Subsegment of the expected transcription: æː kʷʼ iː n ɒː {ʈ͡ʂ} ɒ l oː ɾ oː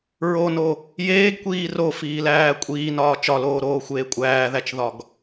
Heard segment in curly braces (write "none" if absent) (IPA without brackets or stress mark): t͡ʃ